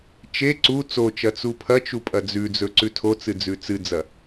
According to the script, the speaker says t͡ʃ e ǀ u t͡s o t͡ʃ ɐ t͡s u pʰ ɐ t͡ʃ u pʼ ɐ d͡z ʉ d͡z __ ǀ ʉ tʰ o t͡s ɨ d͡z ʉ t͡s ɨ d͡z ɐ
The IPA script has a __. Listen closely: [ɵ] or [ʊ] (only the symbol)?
ɵ